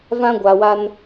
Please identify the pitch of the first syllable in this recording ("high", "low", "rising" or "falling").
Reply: high